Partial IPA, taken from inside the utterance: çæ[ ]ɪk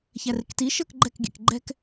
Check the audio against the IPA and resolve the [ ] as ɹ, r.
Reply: r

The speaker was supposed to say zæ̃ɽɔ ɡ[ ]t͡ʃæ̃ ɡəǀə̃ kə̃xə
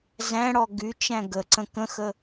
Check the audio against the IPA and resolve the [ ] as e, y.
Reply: y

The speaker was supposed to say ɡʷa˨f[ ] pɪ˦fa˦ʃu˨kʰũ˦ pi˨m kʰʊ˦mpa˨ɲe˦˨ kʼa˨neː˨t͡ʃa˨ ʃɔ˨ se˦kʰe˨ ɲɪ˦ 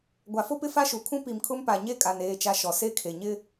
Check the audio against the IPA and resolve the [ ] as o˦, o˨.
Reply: o˦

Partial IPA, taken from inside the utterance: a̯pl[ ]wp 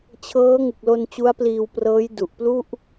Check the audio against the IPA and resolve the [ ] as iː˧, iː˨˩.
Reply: iː˧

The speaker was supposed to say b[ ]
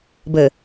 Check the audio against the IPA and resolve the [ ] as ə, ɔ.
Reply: ə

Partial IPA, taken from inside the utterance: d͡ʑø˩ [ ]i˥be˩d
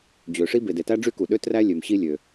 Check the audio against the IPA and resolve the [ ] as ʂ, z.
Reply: ʂ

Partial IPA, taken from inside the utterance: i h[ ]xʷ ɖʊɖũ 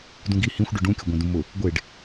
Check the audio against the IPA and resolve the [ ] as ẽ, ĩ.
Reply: ĩ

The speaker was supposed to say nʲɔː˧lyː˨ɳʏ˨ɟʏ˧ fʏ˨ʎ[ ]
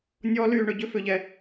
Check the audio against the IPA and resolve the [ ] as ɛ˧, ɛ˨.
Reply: ɛ˨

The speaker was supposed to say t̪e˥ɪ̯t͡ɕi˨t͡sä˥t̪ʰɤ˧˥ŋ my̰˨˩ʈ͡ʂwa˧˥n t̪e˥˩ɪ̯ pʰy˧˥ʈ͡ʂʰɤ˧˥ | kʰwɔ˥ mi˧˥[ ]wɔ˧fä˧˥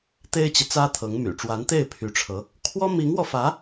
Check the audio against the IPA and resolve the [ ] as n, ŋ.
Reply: ŋ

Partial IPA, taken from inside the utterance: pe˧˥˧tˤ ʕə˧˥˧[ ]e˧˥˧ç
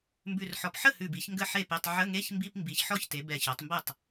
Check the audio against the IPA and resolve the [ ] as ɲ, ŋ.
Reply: ŋ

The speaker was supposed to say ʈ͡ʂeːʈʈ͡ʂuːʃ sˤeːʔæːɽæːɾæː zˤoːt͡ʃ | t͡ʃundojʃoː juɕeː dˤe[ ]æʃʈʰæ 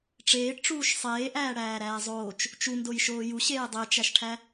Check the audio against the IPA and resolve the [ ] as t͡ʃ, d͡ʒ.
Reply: t͡ʃ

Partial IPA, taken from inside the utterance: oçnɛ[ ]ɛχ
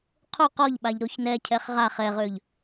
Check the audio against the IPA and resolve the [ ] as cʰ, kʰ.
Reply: cʰ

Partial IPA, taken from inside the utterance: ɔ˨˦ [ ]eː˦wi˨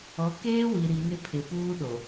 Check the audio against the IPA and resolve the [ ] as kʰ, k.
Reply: k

